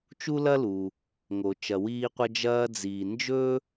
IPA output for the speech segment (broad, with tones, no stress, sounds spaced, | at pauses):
t͡ʃ u˥ l ɐ˥ l u˩ | ŋ o˩ t͡ʃ ɐ˩ w iː˧ qʷ ɐ˧ d͡ʒ ɐː˧ d͡z iː˩ n d͡ʒ ɵ˥